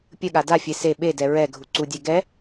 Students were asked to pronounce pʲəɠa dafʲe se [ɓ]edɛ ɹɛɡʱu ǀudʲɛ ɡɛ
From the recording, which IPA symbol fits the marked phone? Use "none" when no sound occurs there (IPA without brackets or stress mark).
ɓ